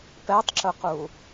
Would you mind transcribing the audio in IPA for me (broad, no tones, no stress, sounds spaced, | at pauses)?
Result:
p ɛ tˤ ǁ ʊ q u